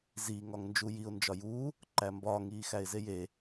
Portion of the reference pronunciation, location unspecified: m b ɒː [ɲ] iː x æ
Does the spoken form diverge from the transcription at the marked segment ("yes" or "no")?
yes